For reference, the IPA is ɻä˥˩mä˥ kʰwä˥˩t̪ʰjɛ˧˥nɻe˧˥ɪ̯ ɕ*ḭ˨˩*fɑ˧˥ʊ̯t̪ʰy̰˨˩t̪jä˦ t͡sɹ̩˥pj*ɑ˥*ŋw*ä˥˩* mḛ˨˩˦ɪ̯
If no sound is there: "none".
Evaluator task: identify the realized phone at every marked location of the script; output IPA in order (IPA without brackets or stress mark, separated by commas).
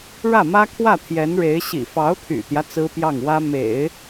ḭ˨˩, ɑ˥˩, ä˥